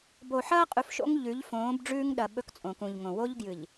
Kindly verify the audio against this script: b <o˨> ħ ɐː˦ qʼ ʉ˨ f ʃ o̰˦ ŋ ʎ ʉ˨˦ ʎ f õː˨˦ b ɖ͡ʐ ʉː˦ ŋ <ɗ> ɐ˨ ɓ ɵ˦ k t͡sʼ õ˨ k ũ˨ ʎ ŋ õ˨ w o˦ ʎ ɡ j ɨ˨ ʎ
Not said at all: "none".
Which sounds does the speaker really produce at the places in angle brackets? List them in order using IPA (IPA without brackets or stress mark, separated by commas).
o˨, ɗ